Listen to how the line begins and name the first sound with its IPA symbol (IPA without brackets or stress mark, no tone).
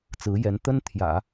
t͡s